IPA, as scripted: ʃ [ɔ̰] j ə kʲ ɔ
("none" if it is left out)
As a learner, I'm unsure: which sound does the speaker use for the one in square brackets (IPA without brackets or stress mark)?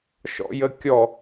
ɔ̰